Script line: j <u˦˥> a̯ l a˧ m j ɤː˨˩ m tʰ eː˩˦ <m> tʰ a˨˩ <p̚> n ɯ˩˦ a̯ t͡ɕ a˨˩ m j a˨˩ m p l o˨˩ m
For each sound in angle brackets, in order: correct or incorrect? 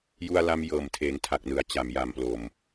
incorrect: u˧, incorrect: ŋ, incorrect: k̚

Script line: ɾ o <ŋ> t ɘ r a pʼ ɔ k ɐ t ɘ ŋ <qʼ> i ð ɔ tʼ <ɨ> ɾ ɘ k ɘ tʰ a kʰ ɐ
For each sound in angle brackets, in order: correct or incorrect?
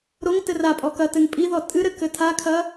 correct, incorrect: pʼ, correct

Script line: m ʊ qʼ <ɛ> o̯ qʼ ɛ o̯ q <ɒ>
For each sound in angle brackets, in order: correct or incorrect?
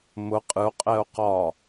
incorrect: ɨ, correct

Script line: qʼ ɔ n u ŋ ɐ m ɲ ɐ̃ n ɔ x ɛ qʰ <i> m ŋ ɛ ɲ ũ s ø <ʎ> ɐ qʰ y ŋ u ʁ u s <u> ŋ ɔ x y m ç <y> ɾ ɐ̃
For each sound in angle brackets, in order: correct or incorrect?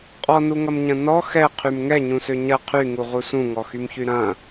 incorrect: y, incorrect: ɲ, incorrect: ũ, correct

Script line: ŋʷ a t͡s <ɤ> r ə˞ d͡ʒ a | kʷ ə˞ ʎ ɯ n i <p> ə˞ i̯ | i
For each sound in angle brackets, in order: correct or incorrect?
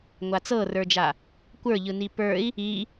correct, correct

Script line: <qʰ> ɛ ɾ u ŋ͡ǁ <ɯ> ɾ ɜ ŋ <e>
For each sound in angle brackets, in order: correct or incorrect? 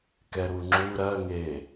incorrect: k, incorrect: u, correct

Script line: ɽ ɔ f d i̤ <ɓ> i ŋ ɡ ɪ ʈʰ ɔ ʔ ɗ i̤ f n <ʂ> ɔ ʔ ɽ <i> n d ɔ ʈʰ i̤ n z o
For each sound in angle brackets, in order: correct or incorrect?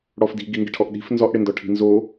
incorrect: ɡ, incorrect: z, incorrect: ɪ

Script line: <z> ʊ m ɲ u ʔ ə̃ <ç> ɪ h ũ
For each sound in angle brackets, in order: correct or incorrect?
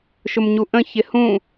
incorrect: ʃ, correct

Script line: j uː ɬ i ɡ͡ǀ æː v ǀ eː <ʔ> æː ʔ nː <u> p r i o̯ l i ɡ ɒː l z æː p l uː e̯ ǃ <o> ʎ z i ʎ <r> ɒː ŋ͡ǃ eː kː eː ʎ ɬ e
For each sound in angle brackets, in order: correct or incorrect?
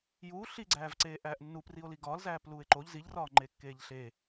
correct, correct, correct, correct

